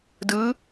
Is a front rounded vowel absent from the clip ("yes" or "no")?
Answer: yes